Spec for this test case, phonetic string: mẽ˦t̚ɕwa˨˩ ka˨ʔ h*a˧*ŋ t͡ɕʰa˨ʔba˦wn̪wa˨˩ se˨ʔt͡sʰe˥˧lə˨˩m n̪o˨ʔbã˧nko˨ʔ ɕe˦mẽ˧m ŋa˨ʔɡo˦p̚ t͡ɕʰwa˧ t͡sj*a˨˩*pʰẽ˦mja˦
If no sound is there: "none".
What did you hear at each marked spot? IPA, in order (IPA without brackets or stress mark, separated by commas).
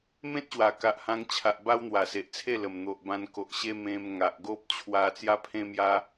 ã˧, a˦